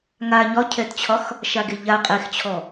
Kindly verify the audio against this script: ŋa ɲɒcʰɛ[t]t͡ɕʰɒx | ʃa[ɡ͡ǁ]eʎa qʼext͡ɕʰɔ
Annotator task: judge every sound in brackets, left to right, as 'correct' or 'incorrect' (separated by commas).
correct, incorrect